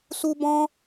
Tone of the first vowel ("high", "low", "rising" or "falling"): high